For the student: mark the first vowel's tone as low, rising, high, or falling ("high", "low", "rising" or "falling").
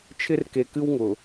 high